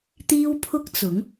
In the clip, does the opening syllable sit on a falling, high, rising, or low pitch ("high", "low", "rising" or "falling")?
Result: high